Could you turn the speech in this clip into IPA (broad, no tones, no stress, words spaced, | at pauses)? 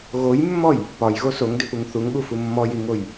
ɣojmːɔj | pɒjɣo soŋdʏpuŋ θuŋɠufu mːɔjiŋoj